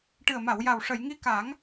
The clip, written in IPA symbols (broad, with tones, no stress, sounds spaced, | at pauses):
ʈ ɨ˨˩ ə̯ m a˨˩˨ w j a˨˩ w ʂ ə˨˩˨ j ŋ i˧˥ k a˨˩˦ ŋ